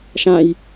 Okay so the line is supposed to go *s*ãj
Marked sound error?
yes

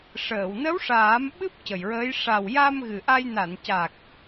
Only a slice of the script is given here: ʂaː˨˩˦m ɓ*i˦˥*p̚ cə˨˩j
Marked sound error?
yes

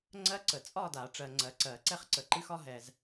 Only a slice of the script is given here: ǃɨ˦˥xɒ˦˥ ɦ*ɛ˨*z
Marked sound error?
no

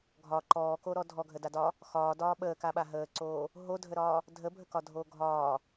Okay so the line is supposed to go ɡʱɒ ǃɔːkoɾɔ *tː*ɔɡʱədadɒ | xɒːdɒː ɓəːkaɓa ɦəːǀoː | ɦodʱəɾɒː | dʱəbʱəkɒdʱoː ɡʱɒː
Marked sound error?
yes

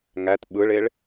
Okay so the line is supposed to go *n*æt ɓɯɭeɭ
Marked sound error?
yes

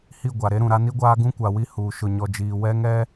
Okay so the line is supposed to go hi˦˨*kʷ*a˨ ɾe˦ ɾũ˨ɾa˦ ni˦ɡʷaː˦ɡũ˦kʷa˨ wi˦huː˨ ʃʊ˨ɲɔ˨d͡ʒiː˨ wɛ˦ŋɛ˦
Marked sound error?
yes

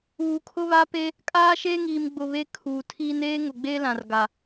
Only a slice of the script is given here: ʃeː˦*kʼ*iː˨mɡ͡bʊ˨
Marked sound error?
yes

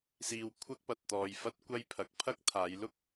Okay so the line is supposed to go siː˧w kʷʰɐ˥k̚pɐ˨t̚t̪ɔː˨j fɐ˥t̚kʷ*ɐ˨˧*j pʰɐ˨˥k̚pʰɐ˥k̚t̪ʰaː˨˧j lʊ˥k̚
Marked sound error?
yes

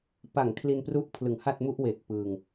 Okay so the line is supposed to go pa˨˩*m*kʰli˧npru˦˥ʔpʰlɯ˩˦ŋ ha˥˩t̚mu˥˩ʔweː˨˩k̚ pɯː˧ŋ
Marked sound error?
yes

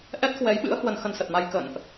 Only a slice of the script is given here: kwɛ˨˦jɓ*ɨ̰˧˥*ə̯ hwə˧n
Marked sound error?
no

